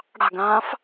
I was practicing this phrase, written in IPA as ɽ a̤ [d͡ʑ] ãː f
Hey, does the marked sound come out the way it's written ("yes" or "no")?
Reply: no